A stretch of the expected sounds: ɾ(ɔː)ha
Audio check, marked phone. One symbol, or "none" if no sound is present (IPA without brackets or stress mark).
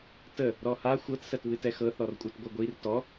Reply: ɔ